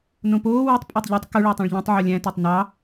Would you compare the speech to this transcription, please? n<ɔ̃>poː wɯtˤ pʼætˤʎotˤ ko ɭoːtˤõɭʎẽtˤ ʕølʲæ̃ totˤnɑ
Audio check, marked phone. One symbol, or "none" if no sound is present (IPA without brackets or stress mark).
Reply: õ